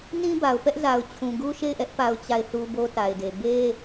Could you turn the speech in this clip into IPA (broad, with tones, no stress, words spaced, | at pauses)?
nĩ˦ba˨ʊ̯pɛ˦ʔza˨ʊ̯ t͡ɕʰũ˨ɡu˦ʃe˦˨ɪ̯ʔɛ˦ʔ pa˦ʊ̯t͡ɕa˦˨ɪ̯θu˦ bo˦ta˨ɪ̯de˨ be˦